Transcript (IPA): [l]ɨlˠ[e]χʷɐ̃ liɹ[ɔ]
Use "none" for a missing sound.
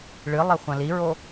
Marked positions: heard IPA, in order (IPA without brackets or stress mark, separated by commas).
ɭ, e, o